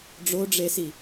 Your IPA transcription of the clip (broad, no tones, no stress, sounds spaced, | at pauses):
ɖ͡ʐ o ɖ͡ʐ e s i